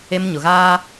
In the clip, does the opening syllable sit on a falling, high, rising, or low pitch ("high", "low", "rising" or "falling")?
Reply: high